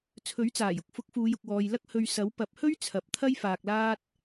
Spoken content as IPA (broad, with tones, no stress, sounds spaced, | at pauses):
t͡sʰ ɵ˨˥ ɥ t͡s aː˨˩ j ʊ˧ k̚ f ʊ˨˥ k̚ f uː˨˧ j ʊ˨ k̚ w ɔː˨ j l ɐ˥ k̚ h ɵ˧ ɥ s ɐ˨˥ w p ɐ˨˥ p̚ h ɵ˥ ɥ t͡sʰ ɐ˨˥ p̚ t̪ʰ ɐ˥ j f aː˧ k̚ l aː˥ t̚